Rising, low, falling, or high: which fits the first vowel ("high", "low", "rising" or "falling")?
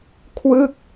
falling